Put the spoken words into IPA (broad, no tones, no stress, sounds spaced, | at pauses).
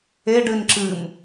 e ɖ ɨ n ǁ ɨ m